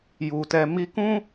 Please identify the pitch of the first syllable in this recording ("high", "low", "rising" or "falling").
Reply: low